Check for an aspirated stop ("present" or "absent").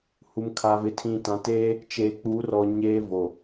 present